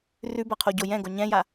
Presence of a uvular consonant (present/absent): present